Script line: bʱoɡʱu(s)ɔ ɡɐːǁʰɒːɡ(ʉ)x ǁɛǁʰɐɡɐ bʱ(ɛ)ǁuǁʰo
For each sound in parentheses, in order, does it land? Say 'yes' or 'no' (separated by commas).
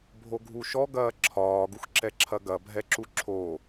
no, no, yes